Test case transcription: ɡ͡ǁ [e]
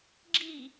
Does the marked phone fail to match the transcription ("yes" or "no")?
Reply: yes